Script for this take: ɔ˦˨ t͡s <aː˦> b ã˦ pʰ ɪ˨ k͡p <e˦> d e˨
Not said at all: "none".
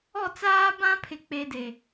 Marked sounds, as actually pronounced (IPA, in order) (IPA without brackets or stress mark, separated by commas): aː˦, e˦